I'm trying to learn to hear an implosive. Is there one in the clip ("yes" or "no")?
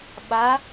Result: yes